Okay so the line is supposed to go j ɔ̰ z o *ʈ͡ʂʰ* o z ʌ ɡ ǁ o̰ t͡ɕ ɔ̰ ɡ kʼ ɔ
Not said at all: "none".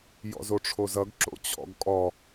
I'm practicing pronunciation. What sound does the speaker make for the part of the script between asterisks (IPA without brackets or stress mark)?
ʈ͡ʂʰ